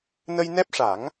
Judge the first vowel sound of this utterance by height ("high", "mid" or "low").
mid